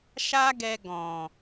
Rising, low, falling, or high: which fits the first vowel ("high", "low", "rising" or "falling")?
high